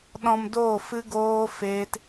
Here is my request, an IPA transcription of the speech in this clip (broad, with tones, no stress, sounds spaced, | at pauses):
ɗ ɔ̃˧ m d oː˦˨ f ɨ˦ ɡ oː˦ f eː˦ t